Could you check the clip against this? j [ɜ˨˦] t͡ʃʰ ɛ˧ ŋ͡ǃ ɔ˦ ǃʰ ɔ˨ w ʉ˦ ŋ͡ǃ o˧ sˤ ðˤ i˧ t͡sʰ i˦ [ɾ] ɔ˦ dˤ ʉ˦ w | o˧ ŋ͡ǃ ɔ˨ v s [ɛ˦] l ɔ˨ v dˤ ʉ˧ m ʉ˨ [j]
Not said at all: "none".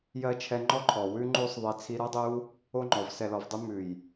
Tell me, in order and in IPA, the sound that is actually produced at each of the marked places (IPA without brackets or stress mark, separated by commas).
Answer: ɜ˧, ɾ, ɛ˨, j